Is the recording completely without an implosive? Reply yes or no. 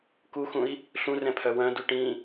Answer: yes